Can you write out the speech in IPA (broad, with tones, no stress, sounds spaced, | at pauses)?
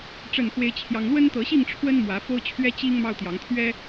ʈ͡ʂ ə˥˨ n k w e˦ ɪ̯ t͡ɕʰ j ɑ˦ ŋ l w ə˦ n t̪ ɤ˨˦ ɕ i˥˨ ŋ ʈ͡ʂʰ w ə˦ n m w ä˨˦ f o˦ ʊ̯ t͡ɕʰ ɥ ɛ˦ t͡ɕ i˦ ŋ m ɑ˦ ʊ̯ t̪ j ɑ˨˦ ŋ t̪ʰ ɥ ɛ˦